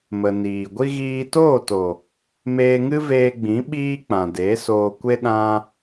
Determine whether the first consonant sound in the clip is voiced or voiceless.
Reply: voiced